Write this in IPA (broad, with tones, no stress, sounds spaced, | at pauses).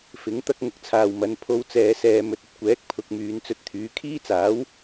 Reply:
f ɪ˨˥ ŋ t̪ ɐ˥ k̚ ŋ ʊ˨ k̚ t͡sʰ aː˨ w m ɐ˨˧ n pʰ o˧ w t͡s ɛː˨ s ɛː˨ m ɵ˨ t̚ ɐ˨ t̚ kʷ ɛː˨˥ k̚ pʰ ʊ˧ k̚ m yː˨˧ n t͡s ɵ˧ t̚ t̪ʰ yː˨˥ kʰ iː˥ t͡s aː˨˥ w